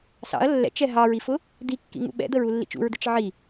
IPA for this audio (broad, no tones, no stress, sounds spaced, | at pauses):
s ɑ̰ ɐ̯ lː ɛ̰ t͡ʃ ɛ ɦ ɑ ɹ i f ʊ | d̪ i kː ḭ ŋ ṵ ɓ ɛ̰ d̪ ə ɹ u lː ḭ t͡ʃ ṵ ɹ d̪ ɪ t͡ʃ ʕ i